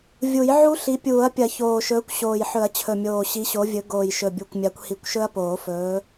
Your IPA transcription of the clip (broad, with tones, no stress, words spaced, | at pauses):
vʲu˨˩˦jʕu˦˥ɬi˨˦ pʲuː˨˩˦ɐ̯pʲɐ˨˩˦çoː˨˩ʃɵː˨˦kʷ ɕoː˨˩jħɵ˨˩˦ɐ̯t͡ɕʰɵ˨˩mʲoː˨˩ ɕi˨˦ɕo˨˦vʲɵ˨˦ ɡoː˨˩jʃɵ˨˩bʲu˨˩kʷmʲa˨˦kʷ hi˨˩˦kʷʃɵ˦˥ɐ̯poː˨˩˦fɵː˨˦